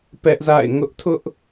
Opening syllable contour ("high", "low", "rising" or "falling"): high